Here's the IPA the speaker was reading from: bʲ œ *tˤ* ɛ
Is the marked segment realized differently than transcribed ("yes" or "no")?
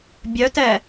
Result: yes